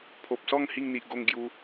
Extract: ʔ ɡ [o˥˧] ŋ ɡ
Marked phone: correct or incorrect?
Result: correct